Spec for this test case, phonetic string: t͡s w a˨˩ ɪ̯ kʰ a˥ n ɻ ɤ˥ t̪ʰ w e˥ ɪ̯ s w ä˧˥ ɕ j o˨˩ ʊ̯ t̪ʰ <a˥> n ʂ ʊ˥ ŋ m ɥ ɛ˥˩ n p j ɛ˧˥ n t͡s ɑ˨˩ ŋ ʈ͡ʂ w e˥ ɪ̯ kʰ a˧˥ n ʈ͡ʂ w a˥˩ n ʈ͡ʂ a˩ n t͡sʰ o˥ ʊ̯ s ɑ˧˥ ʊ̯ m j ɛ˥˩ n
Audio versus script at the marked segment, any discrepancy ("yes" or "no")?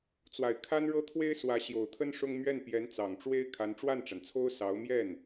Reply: yes